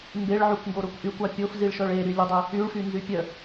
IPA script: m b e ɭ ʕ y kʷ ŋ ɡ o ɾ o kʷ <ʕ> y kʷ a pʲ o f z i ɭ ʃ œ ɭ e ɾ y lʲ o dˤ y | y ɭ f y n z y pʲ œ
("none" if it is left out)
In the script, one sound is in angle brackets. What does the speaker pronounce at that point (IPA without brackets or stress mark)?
ʔ